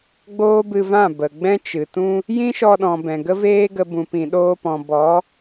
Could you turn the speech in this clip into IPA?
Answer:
ɡ͡b oː˦ b ɨ˧ v ã˦˨ b ə˨ ɡ͡b ɛ̃˦ t͡ʃ ɨ˨ t ũ˦ | j ĩ˦ ʃ ɔ˧ ɗ ɔ̃˨ b ɛ̃˨ ɡ ə˦ v eː˦ ɡ ə˧ b ũ˨ p ĩ˨ ɗ oː˧ p ɔ̃˨ b ɔ˨˦

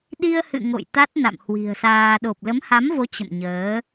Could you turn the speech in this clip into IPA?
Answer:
ɗ i˧ ə̯ h ɨ̰˧˨ ŋ o̰˧˨ j t̪ a˦˥ t̚ n a̰˧˨ m h w i̤˨˩ ə̯ s aː˧ ɗ o˨˩ p̚ l ə˨˦ m h a˨˦ m v o˨˦ t͡ɕ ə̰˧˨ m ɲ əː˨˦

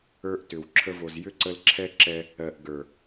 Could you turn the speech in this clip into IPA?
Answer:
ə˞˦ ʔ t ʏ˨ w ǁʰ ə˧ v o˨ z j ʏ˦ ǀ ə˧ l ǁʰ ɛ˦ ǁ ɛ˧ | ɜ˨ ʔ ɡ ə˞˨

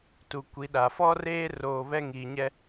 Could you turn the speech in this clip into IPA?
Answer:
t u˨ kʷ i˨˦ ɗ a˨ f ɔ˦ r eː˦ r oː˨ β ɛ˦ ŋ iː˨ ɲ ɛ˦

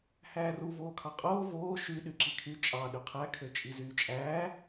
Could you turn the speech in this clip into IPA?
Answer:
h æː r u v oː kʰ ɑ qʼ oː v oː ʃ y ɗ y ǁ i kʰ y t͡ʃʼ ɑ ɗ y qʰ æ kʰ ø t͡ʃʼ i z yː t͡ʃʼ æː

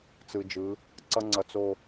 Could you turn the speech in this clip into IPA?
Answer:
t͡s ɯ˨ d͡ʒ ɯ˨˦ | ǀ ʌ˦ ŋ͡ǀ ʌ˨ t͡s o˨

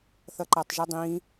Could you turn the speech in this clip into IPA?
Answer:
θ ʌ ǃ a tˤ ʒ u dˤ ĩ

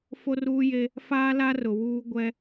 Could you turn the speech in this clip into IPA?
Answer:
f o˦ r uː˦ j e˦ | f aː˦ l a˦ r ʊ˨ w uː˦ ɡʷ ɛ˦

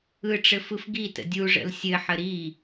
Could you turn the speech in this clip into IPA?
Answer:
ɯ ʈ͡ʂ ɘ f ɯ f ɡ i t ə̰ dʲ u ʐ ə̰ l sʲ ɘ ħ ə ɾ i

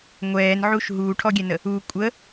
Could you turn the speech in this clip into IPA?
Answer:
ŋʷ ɛː n ʕ u ʃ ɦ uː ʈʰ ɔ ɡʲ ɛ n ə | u kʷʼ ə

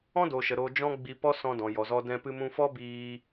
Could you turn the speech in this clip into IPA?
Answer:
ɔ̃˦ d o˨ ʃ ə˨ ɾ o˦ d͡ʒ ɔ̃˦ ɡ͡b i˧ p ɔ˦ s ɔ̃˧ d ɔ̃˨ j ɔ˨ z ɔ˧ d ɛ̃˧ p ɨ˧ m ũ˧ f ɔ˦ b iː˧

